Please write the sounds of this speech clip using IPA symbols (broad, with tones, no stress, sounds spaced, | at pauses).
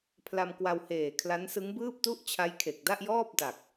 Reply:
pʰ l a˧ m k w a˧ w h eː˨˩ kʰ l a˦˥ n s ɯ˦˥ ŋ b ɯː˥˩ p̚ t u˥˩ ʔ t͡ɕʰ a˦˥ j kʰ e˨˩ k̚ d a˥˩ ʔ j ɔː˥˩ p̚ d a˨˩ k̚